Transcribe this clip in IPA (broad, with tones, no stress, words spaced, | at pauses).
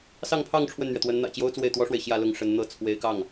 sɑ˥˧ŋpʰɑ˥˧ŋ ʈ͡ʂʰwə˥˩nn̪ɥɛ˩ t̪wə˧˥nn̪ä̰˨˩t͡ɕjo˥ʊ̯ t͡swe˥˩ɪ̯t̪wɔ˥ʂwe˨ɪ̯ ɕjä˥˧lʊ˥˩ŋ ʂə˧˥nn̪ɤ˥˩ t͡sʰwe˧˥ɪ̯kɑ˥˩ŋ